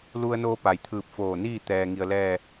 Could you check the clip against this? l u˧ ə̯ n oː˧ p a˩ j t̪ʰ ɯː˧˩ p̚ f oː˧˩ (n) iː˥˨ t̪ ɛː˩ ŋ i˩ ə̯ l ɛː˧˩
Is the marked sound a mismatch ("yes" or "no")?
no